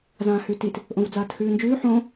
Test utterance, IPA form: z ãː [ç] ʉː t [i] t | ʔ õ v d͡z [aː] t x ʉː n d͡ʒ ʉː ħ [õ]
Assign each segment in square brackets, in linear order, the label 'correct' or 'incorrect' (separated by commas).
incorrect, correct, correct, correct